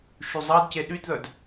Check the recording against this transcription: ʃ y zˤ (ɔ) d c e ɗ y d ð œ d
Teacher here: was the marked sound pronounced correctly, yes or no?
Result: no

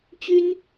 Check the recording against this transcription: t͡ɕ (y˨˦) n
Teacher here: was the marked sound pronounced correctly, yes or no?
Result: no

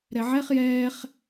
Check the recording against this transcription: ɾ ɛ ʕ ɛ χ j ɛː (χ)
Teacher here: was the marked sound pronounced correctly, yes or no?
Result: yes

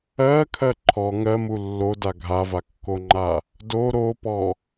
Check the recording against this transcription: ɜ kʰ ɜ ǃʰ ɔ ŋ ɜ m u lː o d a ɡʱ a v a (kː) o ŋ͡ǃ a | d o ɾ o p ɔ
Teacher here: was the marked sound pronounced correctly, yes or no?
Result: yes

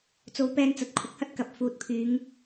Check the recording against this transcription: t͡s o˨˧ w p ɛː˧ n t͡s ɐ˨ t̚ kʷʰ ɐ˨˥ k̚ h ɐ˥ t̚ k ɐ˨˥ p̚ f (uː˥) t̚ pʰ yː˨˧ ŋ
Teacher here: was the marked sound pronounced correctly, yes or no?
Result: no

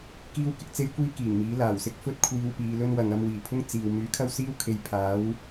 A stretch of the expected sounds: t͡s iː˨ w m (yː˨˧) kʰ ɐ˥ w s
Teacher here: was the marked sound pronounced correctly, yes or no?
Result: no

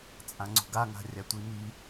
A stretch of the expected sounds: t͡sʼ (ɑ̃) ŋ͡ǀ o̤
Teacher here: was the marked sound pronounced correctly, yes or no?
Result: no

